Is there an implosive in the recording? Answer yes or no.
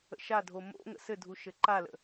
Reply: no